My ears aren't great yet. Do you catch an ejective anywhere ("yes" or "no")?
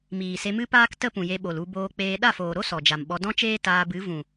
no